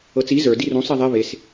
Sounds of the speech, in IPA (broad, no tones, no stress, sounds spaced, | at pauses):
ɤ t͡s i z ə˞ d i r ũ sˤ i ðˤ e β e s